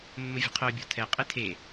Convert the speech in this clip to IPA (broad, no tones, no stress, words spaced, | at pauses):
mːəvʲə̤qʰœ bʲɔ̤tʰɛ qʼɨtʰe